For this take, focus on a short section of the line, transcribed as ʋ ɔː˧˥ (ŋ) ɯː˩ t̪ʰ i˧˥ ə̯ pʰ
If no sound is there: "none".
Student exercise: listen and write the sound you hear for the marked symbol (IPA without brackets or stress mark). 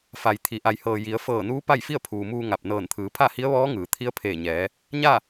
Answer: ŋ